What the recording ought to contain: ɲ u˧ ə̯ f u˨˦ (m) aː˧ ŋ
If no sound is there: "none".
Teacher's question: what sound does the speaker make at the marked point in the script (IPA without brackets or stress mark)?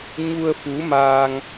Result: m